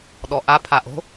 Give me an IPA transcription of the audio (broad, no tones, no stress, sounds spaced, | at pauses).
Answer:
ɗ ɔ ʔ a pʰ a ʔ o̤